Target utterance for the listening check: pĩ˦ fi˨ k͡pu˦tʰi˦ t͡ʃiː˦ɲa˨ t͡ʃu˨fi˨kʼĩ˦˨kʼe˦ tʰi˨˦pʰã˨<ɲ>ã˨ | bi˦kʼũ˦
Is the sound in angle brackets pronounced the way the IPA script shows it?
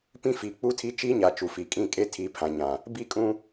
yes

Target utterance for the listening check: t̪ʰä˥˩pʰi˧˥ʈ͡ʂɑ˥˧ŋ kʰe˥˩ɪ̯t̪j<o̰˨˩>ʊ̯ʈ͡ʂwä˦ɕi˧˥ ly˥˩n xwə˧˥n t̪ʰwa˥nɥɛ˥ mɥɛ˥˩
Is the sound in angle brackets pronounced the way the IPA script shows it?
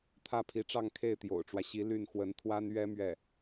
yes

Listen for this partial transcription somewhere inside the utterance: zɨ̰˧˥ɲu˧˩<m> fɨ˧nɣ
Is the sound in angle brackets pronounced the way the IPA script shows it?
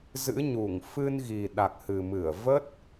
no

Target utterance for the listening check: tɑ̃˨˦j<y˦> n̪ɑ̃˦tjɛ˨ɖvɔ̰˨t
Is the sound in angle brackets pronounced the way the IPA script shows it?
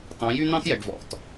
yes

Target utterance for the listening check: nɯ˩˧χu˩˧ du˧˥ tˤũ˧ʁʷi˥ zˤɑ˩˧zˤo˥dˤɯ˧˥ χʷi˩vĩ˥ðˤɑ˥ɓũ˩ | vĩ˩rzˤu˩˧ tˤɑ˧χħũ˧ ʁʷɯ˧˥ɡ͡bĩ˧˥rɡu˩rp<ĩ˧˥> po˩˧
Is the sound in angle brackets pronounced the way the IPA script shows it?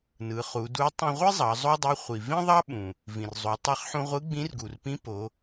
yes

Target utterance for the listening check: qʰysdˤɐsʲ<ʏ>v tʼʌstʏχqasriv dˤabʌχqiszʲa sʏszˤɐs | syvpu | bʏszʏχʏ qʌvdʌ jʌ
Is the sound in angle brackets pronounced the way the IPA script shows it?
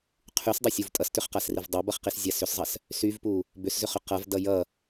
no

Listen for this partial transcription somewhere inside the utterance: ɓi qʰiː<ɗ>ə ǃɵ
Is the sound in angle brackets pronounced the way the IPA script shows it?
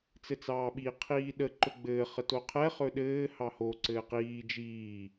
yes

